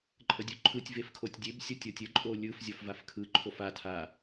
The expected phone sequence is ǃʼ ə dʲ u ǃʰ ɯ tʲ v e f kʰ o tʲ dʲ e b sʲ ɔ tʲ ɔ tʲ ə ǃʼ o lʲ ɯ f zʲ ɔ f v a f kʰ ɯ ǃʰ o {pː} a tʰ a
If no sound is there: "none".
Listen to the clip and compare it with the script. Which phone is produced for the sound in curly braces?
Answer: f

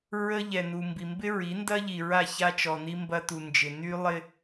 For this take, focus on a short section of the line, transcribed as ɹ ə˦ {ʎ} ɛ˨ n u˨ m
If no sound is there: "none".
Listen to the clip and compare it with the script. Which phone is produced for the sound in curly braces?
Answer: ʎ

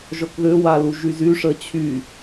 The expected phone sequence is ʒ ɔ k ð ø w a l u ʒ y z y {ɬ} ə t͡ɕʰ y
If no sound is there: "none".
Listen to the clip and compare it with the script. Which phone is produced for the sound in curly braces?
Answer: ʂ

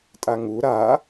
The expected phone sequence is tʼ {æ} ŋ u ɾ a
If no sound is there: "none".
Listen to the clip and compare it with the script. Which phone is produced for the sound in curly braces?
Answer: a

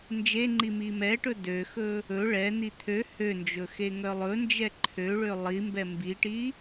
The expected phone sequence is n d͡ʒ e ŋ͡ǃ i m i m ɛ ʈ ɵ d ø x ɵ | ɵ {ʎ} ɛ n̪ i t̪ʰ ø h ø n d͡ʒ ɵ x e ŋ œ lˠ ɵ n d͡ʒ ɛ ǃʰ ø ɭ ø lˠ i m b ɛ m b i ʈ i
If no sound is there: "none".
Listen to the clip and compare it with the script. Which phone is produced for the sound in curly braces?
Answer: ɭ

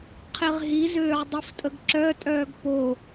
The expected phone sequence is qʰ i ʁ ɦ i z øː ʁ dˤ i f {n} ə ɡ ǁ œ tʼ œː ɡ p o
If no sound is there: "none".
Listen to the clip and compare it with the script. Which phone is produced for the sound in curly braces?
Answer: tʼ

